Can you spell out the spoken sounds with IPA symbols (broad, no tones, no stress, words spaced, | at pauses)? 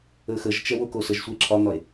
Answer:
əxəʒt͡ʃɛ wokosəʒsʷəe̯ ǁʰɒn̪ɒe̯